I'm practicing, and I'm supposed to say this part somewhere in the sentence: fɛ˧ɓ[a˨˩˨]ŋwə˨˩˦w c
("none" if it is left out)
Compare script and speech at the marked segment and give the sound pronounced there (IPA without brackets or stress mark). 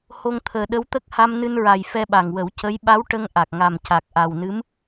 a˨˩